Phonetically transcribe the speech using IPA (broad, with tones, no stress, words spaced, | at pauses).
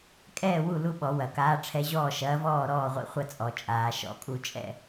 kʼɛː˥˨wu˥˨ lu˥˨ɓɔ˨˩˦wɐ˨˩˦kaː˧˥ ʈ͡ʂʰɛ˧˥ʑɔː˥˨ʃɐː˧˥vɔː˥˨ ɾɔː˥˨ʁʷḭ˧˥ χʷɐ˥˨t͡sʼɔ˨˩˦t͡ʃʼaː˨˩˦ ʃɔ̰˨˩˦kʼu˥˨t͡ʃʼɛ̰˥˨